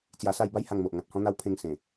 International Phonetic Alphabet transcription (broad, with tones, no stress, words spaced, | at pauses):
t͡sja˧sa˥˧j ba˦jha˧ŋmo˨ʔ ŋã˨t̚hɔ̃˦n̪a˦w pʰẽ˧ŋ sẽ˨˩